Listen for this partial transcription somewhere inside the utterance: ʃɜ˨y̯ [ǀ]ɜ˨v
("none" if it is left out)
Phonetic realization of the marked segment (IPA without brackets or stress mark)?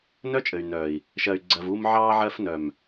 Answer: ɡ͡ǀ